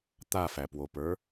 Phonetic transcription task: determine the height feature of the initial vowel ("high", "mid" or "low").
low